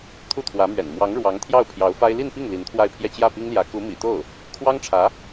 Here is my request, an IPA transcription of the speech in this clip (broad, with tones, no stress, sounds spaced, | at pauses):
t̪ʰ u˥˩ t̪ʰ w ä˧˥ m ɥ ɛ̰˨˩ n m w ɑ˧˥ ŋ ɻ w ɑ˧˥ ŋ t̪ʰ j ɑ˥˩ ʊ̯ pʰ j ɑ˧˥ ʊ̯ f a˥ ɪ̯ l i˥˧ n p i˥˩ ŋ l i˧˥ n t̪ʰ w a˥˧ ɪ̯ pʰ j ɛ˥˧ t͡ɕ j ä˥˩ p i˥ ŋ l j ä˧˥ k u˧˥ m ḭ˨˩ t̪ o˥˩ ʊ̯ | kʰ w ɑ˥ ŋ ʈ͡ʂʰ ä˧˥